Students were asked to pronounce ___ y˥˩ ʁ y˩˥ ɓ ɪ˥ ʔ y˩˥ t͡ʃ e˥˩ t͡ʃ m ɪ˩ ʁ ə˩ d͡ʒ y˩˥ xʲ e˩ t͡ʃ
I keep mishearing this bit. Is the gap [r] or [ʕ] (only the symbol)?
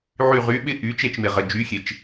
ʕ